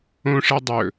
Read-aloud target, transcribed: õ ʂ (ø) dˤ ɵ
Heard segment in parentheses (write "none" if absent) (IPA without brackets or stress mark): ɛ